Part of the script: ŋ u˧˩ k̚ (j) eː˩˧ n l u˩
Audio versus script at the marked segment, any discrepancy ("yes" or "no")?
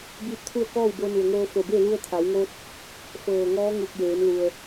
no